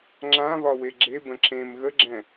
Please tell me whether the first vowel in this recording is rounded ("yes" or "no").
no